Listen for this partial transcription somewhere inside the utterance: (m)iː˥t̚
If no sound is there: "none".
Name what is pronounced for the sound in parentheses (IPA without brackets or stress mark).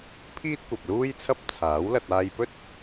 pʰ